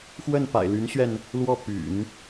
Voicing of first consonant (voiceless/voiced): voiceless